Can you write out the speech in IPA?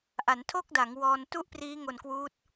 ʔa˩˦n tʰo˥˩k̚da˩˦ŋ wɔː˧n tu˥˩ʔpriː˦˥ ŋo˧nkwuː˦˥t̚

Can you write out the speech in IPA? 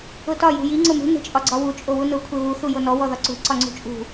ʊtɒ jṳji ŋ͡ǀʊmṳ ne̤t͡ʃʼɒɡ͡ǀɒwu t͡ʃʼowunʊ kʷʰeβu θujonɔ wɔðɒǀṳ ǀɒŋ͡ǀṳt͡ʃʼṳ

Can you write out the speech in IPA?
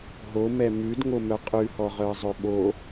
ɦomɛ mʉdŋomœ qʼʉhɔʁœɐ̯zˤɵ ɓo

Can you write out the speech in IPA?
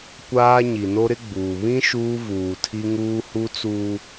kʷaː˦ ɲi˨no˦ ɾɪ˦ɡ͡buː˨ βĩ˦ ʃuː˦vuː˨tʰi˦ŋuː˦ hu˦t͡suː˦

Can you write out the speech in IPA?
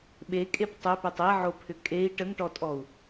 ɓekʼep tˤɵpʏtˤ eʕopʰʏ kʼei̯ ʈəŋʈɔtʼɔu̯

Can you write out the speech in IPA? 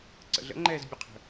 ǀə̰ɮə̰ŋ͡ǃɛːz bʲəqʰə̤

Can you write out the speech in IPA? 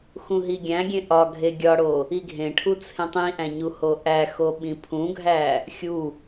xũɦiɡʲæ̃ɡʲẽ ʔɒɡʱe ɡʲɒɽo | iɡʱẽʈʰu t͡sʰẽtˤĩʔæ̃ ɲuhoʔæxo ɓĩpʰũɡʱæ | xʲu

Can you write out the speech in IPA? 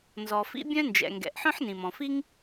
nzɔ˩fḭ˥ bʲœ̃˥nd͡ʒɛ̰˩ŋɡɛ̰˩ʔ ħœ̃˥ħnĩ˩mɔ̃˩fi˥ŋ

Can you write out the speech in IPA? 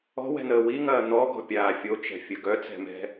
ɔ̤wɛ̤n̪əː wiŋɐː n̪ɔɡɔ̤pʲaː fʲot͡ʃɛ̤fʲə ɡœt͡sɛ̤mɛ̤

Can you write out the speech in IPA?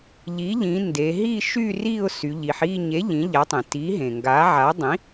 ʎi˩˥ʎĩ˩˧ nde˩˧ɦi˥˨ ʃy˥˨ri˥˨ʊ̯ sy˩˧ʎi˩˧ħi˥˨ ɲe˩˥ ʎĩ˩˥ʎa˩˥tˤĩ˩ ti˩˥ɦẽ˩ŋɡa˩˥ ʕa˩˥dˤĩ˩˥

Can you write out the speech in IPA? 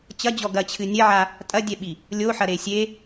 t͡ɕɐd͡ʑɔ ɡɐt͡ɕʰɨ nʲɛʕa | tʼɐdʲɛɓi | lʲoħɐɾe sʲe

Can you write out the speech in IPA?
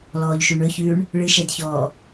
lɔːʎʃʉɳɵçʉːɳ | ɭɨʃɛdçɔː

